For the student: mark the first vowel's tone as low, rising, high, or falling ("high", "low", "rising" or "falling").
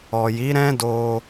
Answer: low